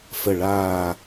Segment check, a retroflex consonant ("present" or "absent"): present